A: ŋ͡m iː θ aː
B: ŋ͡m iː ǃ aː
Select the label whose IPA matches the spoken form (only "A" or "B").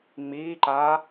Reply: B